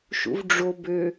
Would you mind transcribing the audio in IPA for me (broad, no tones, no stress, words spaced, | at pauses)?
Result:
ʃṵvɖ͡ʐo bø